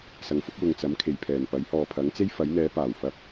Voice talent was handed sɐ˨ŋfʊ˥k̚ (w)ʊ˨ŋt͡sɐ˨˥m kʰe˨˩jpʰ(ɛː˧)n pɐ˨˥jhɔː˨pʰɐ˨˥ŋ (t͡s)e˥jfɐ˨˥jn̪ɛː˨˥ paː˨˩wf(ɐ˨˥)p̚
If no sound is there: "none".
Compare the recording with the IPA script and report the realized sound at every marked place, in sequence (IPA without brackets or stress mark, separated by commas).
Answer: w, ɛː˨˩, t͡s, ɐ˧